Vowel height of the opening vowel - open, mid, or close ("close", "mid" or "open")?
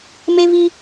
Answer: mid